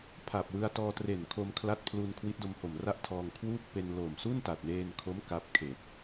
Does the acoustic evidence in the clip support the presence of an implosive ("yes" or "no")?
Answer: no